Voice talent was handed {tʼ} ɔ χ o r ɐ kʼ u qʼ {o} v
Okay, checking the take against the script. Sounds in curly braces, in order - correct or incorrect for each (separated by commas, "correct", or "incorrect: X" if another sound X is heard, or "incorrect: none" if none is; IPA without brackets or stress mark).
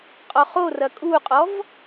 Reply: incorrect: qʼ, incorrect: ɔ